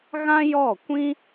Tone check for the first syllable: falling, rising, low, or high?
high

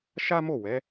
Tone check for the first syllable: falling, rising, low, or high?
high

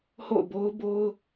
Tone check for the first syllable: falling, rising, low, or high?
falling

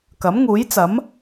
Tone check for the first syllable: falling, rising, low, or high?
rising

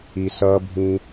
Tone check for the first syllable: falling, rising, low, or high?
low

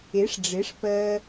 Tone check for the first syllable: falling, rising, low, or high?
rising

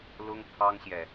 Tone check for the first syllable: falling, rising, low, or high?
high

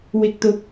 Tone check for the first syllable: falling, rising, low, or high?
low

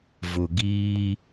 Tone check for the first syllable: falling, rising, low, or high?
low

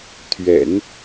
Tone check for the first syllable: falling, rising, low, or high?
low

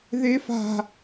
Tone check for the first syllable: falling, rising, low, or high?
high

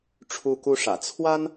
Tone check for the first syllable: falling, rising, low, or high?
high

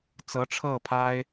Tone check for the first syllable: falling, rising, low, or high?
rising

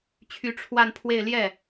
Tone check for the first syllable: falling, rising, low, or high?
rising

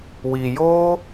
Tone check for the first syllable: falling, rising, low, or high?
low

